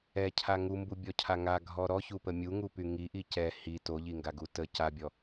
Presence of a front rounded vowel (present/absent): present